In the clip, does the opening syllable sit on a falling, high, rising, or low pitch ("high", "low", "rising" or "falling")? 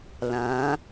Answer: rising